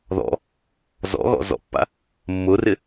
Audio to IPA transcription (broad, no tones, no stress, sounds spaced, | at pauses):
ð ɔ̰ | z ɔ̰ ɣ ɔ̰ z ɔ̰ pː a̰ | mː ʊ r ɪ